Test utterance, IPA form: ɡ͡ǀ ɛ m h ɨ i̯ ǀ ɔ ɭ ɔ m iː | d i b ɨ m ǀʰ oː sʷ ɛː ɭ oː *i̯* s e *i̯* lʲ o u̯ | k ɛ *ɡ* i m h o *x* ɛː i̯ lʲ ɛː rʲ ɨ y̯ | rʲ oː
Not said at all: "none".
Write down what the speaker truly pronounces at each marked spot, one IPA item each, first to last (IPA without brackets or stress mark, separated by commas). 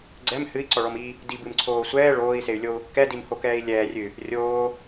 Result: i̯, y̯, d, k